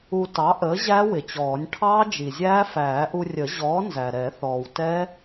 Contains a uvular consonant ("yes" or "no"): no